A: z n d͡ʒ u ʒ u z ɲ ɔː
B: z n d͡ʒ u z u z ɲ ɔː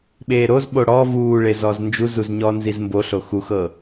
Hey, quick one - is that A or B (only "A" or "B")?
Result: B